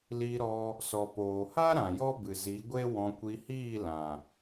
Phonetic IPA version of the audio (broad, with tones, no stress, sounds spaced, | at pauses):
l i˧ ɾ ɔ˧ | s ɔ˨ p oː˨ h a˦ ɾ ã˨ j ɔ˦ b ɨ˨ z i˨˦ ɡʷ e˦ w ɔ̃˧ kʷ i˧ h iː˦˨ l ã˨